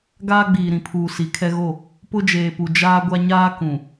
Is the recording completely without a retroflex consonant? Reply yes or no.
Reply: yes